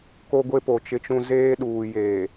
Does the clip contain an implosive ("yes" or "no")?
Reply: yes